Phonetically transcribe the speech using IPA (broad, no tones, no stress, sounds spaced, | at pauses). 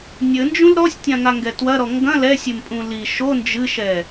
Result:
nʲ ɘ n d͡ʒ ũ l ɾ ɔ sʲ tʲ ã ŋ a ŋ ɡ ɛ t w ɐ ɾ ɔ ŋ ɡ ɐ̃ l ɛ sʲ e m pʼ ũ l i ʃ o n d͡ʒ ɨ ʃ ɛ